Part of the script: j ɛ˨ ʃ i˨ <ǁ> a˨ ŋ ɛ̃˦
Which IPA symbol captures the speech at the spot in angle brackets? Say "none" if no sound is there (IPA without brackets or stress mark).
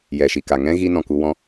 k